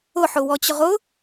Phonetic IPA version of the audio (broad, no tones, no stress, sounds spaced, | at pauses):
ʊ ħ ʊ w ɔ t͡ɕ ʊ ʁ ʊ